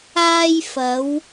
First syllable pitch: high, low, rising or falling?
high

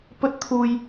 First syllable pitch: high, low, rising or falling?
high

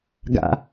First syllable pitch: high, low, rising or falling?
low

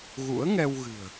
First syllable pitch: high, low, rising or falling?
rising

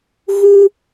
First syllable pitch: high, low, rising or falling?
high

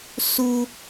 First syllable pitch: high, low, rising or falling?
low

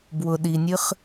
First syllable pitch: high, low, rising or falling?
low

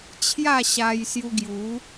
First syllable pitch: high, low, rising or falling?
falling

